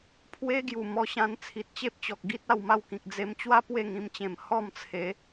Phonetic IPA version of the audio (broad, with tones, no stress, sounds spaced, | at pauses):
pʰ w e˦ ɡ j u˨˩ m ɔ˧ ɕ ã˧ n t͡sʰ i˨ t̚ t͡ɕ e˦ p̚ t͡ɕ ɔ˨ k̚ ɡ i˦ t̚ a˧ w m a˥˧ w k ĩ˨ k̚ d͡z e˧ m t͡ɕ w a˦ p w e˥˧ ŋ ĩ˧ m t͡ɕ ẽ˨˩ m h ɔ˥˧ m t͡sʰ e˨˦